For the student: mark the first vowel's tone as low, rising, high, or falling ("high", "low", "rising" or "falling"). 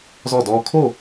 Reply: falling